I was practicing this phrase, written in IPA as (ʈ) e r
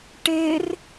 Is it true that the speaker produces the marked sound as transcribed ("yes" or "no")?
yes